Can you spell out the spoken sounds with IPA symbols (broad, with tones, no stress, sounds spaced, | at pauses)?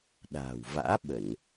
ɗ a̤ː˨˩ w v a̰ː˧˥ ɓ ə˧˩˨ n